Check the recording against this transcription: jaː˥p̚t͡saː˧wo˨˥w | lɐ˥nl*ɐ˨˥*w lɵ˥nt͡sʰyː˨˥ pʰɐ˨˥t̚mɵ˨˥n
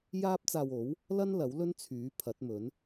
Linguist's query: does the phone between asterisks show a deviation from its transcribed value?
no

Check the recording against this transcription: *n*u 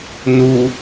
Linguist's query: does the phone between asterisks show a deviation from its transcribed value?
no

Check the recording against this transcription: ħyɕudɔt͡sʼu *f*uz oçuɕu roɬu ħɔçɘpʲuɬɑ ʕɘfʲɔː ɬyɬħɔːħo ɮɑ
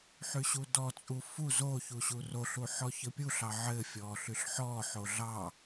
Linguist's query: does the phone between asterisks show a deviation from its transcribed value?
no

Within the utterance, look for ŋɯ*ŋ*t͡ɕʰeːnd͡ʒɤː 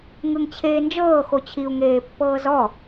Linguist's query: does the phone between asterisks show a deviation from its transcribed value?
no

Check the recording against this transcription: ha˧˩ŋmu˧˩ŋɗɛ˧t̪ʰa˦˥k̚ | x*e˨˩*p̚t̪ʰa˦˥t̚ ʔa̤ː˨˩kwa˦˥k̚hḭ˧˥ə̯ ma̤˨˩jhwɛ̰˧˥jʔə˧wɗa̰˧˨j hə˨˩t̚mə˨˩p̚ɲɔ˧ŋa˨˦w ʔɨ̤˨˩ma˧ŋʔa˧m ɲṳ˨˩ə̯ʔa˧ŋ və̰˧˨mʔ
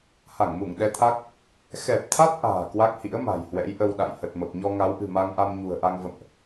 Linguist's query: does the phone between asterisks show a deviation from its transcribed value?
yes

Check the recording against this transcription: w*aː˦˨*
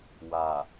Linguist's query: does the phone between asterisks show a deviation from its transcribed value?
yes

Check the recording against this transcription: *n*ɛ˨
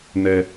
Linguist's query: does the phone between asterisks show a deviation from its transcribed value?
no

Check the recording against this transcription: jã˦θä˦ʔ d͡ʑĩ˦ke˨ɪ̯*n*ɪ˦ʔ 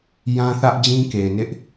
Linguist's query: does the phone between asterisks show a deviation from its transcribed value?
no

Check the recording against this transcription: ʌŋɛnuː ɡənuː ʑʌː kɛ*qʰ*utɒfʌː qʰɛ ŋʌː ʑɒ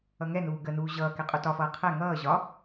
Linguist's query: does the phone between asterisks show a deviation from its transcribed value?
yes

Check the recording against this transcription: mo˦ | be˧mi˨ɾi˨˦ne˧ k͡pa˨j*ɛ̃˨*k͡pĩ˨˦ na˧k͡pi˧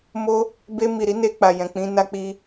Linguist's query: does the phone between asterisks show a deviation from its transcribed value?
no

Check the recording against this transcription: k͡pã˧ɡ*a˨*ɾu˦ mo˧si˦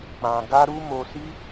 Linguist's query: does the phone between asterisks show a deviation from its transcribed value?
yes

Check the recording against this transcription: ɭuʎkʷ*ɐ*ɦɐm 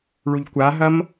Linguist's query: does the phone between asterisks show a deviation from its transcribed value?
yes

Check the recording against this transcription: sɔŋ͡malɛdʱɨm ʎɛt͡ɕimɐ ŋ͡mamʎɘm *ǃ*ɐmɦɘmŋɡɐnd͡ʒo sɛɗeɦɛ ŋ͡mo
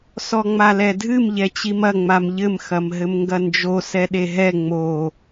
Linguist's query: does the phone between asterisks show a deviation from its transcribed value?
yes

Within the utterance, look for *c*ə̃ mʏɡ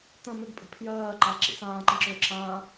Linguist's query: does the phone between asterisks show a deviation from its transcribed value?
yes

